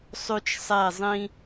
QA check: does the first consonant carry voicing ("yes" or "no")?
no